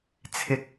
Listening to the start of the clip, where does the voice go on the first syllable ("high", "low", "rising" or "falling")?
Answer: low